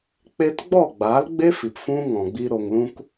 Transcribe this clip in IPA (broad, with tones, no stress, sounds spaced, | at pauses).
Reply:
k͡p e˦ t ɡ͡b ɔ˦˨ ɡ͡b aː˨˦ l ɡ͡b e˦ f i˨ p f ũ˦ ŋ ɔ̃˨ ɡ͡b i˧ ɾ o˨ ŋ l ũ˧ k